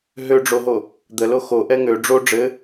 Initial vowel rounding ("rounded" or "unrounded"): rounded